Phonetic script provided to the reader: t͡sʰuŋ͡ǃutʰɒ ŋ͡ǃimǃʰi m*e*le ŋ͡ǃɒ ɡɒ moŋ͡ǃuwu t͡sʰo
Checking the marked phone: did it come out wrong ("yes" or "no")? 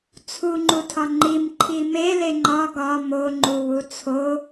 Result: no